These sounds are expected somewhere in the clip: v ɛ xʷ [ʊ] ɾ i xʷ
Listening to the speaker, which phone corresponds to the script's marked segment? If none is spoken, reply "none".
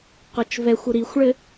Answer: ʊ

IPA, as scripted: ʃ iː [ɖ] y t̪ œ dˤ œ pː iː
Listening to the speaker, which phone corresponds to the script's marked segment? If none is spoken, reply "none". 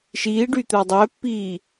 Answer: ɖ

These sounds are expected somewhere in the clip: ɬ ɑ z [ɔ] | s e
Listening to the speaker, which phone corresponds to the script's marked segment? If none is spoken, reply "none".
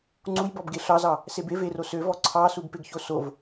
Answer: ɑ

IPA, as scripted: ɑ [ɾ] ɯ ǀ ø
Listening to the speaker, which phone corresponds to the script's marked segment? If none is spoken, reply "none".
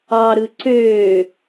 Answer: ɾ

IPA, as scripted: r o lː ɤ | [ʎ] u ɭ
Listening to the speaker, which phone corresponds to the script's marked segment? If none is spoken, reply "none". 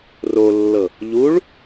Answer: ʎ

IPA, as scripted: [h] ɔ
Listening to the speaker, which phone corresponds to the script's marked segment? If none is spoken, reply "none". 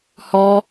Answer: h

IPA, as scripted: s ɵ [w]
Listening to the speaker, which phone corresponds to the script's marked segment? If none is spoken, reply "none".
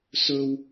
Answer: w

